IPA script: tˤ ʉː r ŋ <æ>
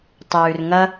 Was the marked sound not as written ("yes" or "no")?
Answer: yes